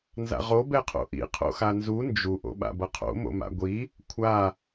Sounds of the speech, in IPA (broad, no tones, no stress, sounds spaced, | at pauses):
n z a̰ ʁ o b ɛ qʰ o̰ ʔ ḭ qʰ o̰ x a n z u n d͡ʒ u ʔ o̰ ɓ a̰ b ʌ qʰ o̰ m o̰ m a̰ ɡʷ i | kʷʰ a